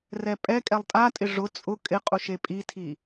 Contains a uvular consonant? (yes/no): yes